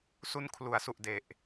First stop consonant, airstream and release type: aspirated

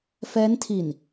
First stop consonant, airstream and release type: aspirated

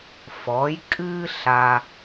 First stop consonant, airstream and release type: ejective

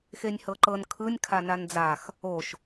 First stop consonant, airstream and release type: click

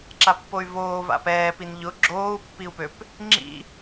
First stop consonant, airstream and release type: click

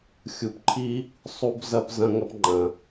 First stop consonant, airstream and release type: plain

